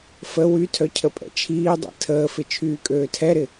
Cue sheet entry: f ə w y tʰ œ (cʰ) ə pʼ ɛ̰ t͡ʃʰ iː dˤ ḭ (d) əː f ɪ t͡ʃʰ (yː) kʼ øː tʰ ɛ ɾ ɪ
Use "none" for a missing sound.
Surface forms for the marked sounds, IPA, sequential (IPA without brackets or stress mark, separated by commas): cʰ, tʰ, yː